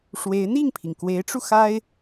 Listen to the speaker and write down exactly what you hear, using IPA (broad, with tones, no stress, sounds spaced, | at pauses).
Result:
ʂ w e˧˥ ɪ̯ n̪ i˥˩ ŋ pʰ i˩ ŋ k w e˧˥ ɪ̯ ʈ͡ʂ u˧ x a˥ ɪ̯